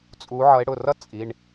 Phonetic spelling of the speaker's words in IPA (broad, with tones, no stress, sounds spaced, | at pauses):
t͡sʼ u˨˦ ʕ ʌ˨˦ e̯ ɽ ʊ˩˧˩ r ʌ˥ t͡sʼ i˩˧˩ ɳ